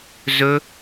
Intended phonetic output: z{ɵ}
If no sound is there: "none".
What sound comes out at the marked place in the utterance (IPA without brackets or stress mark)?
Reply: ɵ